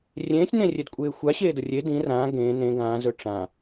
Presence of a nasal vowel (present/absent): present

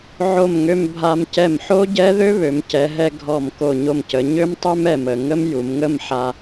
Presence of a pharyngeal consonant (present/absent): present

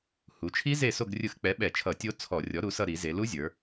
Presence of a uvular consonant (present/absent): absent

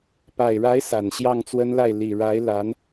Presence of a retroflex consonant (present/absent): present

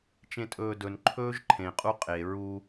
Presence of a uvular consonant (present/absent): present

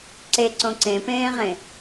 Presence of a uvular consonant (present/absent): present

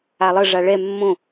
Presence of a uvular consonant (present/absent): absent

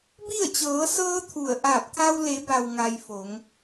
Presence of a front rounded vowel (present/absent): absent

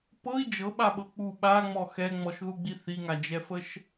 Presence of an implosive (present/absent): present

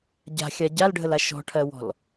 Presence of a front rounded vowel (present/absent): absent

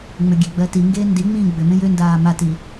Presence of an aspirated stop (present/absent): absent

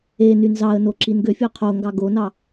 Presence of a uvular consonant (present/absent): present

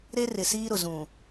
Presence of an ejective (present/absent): absent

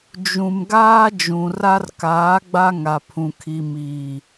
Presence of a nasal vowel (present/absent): present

